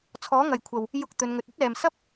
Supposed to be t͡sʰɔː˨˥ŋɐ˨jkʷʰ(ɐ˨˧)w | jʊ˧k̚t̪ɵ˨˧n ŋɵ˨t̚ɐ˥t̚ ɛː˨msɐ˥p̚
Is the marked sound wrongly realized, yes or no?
yes